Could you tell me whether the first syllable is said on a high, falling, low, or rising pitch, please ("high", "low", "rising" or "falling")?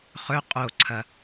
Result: rising